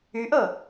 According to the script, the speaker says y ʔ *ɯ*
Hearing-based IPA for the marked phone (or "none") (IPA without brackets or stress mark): ɤ